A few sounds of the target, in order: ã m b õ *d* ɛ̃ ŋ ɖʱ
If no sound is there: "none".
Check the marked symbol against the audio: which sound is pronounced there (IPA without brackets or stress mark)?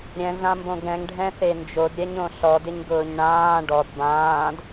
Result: ɡ